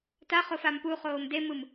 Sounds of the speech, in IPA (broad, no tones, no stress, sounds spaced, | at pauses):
t a χ o f a m p u χ oː m d e m ɯ m